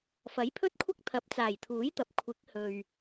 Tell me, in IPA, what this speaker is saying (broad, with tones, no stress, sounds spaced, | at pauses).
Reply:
f ɐ˨˥ j pʰ ɵ˥ t̚ kʷʰ ɐ˥ k̚ t̪ʰ ɐ˨˥ p̚ t͡s aː˨˩ j t̪ʰ uː˨˥ j t̪ ɐ˨ p̚ kʷʰ ɪ˨˥ k̚ h ɵ˨ ɥ